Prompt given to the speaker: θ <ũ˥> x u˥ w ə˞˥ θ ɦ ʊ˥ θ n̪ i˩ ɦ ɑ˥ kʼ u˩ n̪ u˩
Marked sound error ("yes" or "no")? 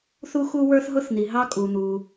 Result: yes